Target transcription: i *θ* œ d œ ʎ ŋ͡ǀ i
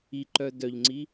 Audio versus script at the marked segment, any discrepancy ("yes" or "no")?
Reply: yes